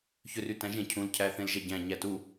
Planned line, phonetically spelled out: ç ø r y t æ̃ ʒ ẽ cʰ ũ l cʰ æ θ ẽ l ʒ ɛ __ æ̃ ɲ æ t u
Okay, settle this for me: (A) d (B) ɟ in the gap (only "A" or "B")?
B